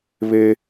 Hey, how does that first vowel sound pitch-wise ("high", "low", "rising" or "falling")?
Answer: high